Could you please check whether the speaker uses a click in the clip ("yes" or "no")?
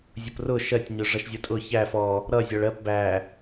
no